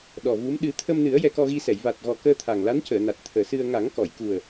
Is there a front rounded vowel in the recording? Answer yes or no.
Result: no